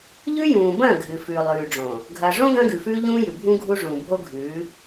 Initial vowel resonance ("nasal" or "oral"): oral